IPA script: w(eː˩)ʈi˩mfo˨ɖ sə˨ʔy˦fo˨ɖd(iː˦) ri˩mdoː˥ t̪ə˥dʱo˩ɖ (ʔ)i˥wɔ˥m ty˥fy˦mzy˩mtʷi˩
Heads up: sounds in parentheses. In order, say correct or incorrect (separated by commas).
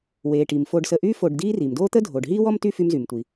correct, correct, incorrect